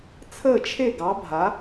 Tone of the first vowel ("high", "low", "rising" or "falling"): falling